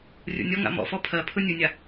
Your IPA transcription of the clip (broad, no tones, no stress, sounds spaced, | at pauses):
rʲ ṵ nʲ ɔ ŋ a̰ m ɔ̰ f ɔ pʰ ɜ pʰ ɯ nʲ ɯ nʲ a